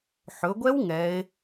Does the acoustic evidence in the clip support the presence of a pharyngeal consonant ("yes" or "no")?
yes